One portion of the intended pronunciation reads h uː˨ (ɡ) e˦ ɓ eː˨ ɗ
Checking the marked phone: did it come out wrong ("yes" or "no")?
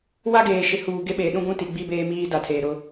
no